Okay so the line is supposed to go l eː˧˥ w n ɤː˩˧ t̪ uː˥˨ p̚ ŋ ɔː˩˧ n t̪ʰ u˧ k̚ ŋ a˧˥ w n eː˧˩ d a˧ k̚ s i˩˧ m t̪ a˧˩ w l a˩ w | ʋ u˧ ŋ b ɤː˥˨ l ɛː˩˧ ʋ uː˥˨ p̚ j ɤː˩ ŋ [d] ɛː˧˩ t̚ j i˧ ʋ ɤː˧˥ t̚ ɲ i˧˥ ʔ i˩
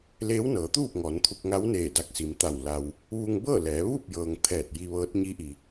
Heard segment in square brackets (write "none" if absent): t̪ʰ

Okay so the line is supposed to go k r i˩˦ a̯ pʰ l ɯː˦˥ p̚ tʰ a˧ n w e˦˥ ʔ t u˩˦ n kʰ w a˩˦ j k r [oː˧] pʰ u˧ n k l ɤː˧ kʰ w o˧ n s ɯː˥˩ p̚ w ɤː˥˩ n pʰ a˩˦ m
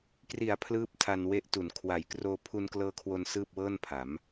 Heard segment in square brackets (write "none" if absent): oː˧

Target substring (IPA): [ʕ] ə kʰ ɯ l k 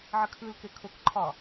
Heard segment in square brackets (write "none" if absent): ʕ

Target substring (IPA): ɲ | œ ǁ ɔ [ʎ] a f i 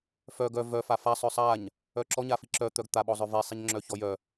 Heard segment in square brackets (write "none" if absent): ɲ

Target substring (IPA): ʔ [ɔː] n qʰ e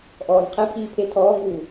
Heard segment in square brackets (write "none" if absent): ɔː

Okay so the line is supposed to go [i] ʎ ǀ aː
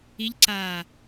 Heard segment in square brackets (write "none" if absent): i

